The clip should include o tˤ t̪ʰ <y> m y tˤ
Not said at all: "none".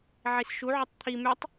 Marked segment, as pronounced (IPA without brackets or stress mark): i